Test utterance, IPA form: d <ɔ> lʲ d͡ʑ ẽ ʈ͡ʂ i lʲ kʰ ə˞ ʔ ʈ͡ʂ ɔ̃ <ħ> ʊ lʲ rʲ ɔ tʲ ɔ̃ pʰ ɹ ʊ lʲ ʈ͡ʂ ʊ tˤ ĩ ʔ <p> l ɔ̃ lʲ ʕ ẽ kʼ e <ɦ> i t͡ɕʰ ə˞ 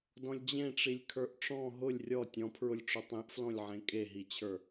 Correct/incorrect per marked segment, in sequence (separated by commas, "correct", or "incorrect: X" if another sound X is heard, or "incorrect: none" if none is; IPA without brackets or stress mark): incorrect: ɔ̃, incorrect: ɦ, incorrect: f, correct